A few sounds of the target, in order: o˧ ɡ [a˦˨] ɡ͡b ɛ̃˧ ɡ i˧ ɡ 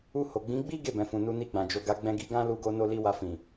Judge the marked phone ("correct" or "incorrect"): incorrect